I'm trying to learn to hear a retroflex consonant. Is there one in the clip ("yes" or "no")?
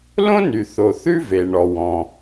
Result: yes